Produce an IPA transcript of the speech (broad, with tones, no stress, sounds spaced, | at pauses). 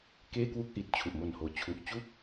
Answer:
k eː˥˩ k w u˥˩ k̚ ʔ i˨˩ t̚ t͡ɕʰ u˨˩ ʔ m o˨˩ n h oː˩˦ t͡ɕʰ u˨˩ ʔ t͡ɕ u˥˩ k̚